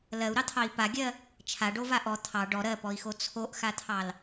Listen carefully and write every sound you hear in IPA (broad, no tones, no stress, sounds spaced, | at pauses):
l ɜ u̯ ɾ ɑ t̪ʰ ɑ i̯ p a ɡʲ ɜ | t͡ʃʰ a ɖ o v a ʔ ɔ t̪ʰ ɑ ɖ ɔ ɾ ɜ p ɔ i̯ x o t͡sʰ o ʔ x a t̪ʰ ɑ l